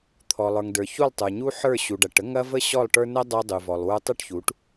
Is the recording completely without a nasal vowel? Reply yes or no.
yes